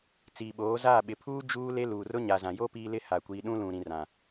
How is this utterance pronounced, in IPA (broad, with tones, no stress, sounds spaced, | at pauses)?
t͡s iː˨ ɓ oː˨˦ z aː˦˨ ɓ ɪ˨ pʰ uː˦ d͡ʒ uː˦ l e˦ l uː˨ r ʊ˦ ɲ a˨ z ã˨ j o˦ p iː˦ l ɪ˦ h a˨ kʷ iː˨ ɗ ũ˦ l ũ˨ ɾ ĩ˨ r ã˨